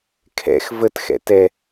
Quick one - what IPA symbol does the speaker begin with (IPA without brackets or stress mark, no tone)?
kʰ